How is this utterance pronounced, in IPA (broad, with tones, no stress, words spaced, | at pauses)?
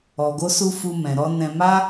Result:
ɔ˨ɡo˧su˧ fu˧ mɛ̃˨ɾɔ˧ nɛ̃˧ ma˦